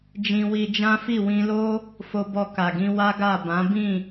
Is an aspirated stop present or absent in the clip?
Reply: absent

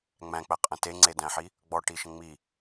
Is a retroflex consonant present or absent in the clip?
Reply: present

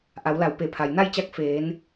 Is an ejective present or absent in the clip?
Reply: absent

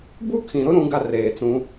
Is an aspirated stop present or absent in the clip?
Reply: present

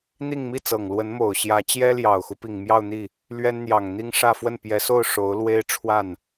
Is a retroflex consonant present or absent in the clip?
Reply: present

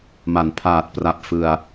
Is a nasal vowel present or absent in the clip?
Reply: absent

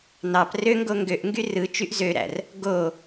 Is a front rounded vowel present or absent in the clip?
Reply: present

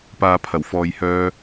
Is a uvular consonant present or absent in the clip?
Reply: absent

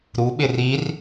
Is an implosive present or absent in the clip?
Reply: present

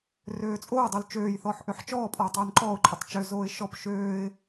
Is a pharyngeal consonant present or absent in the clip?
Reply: present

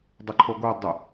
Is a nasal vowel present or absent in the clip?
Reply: absent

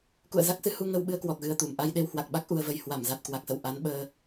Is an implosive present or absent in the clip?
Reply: present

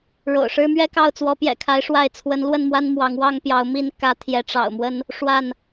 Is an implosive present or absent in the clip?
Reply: absent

